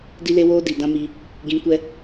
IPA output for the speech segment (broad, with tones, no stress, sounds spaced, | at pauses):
d i˦ l e˦ w oː˦ d i˨ d ã˦ m i˧ | ɡ ĩ˨˦ kʷ ɛ˧